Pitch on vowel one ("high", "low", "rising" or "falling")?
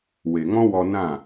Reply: low